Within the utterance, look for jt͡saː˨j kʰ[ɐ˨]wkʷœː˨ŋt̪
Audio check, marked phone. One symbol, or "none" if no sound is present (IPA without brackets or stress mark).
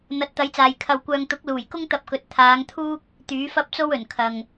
ɐ˨